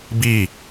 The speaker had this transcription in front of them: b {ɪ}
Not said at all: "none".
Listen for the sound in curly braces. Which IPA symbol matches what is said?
i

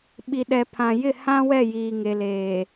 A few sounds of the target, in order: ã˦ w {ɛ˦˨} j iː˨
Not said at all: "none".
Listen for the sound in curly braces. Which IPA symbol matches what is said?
ɛ˦˨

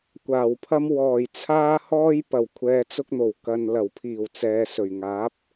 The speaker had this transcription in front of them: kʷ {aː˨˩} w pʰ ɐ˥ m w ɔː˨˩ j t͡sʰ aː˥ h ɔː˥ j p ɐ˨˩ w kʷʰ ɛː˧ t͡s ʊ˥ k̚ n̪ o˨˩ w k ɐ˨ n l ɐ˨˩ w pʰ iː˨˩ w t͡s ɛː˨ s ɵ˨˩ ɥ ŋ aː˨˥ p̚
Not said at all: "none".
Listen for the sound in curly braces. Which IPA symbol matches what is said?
aː˨˩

